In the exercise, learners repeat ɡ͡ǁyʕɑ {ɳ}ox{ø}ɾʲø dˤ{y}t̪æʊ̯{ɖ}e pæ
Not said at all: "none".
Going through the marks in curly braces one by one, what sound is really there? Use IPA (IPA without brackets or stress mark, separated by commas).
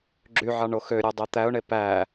ɳ, ø, e, ɳ